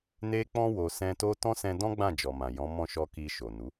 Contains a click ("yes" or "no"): no